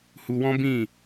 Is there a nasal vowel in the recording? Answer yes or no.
yes